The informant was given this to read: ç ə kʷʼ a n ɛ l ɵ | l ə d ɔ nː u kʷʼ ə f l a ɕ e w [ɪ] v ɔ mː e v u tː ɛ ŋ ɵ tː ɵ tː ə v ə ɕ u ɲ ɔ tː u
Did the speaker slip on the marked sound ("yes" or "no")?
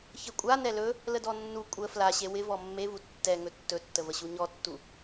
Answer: no